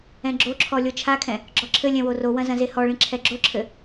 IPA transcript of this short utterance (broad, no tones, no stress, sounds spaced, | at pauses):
ɛ̃ ɡ͡ǁ o ǁʰ ɔ lʲ o t͡ʃʰ a kʰ ɛ̃ | ɡ͡ǁ ɔ ǁʰ ɘ lʲ ɛ̃ w o r o w ɐ̃ z ɐ̃ z e h ɔ ɭ ĩ ǁʰ ɛ ɡ͡ǁ o ǁʰ ɘ